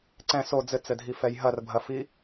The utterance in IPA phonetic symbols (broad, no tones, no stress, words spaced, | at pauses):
ǀɛ̃ so d͡zɘt͡sɘdʱifɛj ɦɐrbʱɐfi